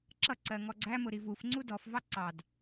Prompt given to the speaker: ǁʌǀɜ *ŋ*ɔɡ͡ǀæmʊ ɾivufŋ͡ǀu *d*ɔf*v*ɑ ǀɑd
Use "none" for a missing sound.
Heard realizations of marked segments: ŋ, d, v

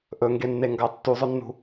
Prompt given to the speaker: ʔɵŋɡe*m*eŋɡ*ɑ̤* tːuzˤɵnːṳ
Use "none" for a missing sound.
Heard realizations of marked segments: nː, ɑ

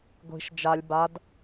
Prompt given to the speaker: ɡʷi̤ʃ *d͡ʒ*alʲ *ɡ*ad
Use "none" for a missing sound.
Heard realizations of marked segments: d͡ʒ, b

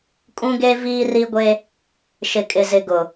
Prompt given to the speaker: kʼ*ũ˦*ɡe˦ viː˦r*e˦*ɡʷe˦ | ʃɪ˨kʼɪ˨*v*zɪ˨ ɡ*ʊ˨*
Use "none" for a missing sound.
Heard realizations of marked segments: ũ˦, i˦, none, ʊ˨

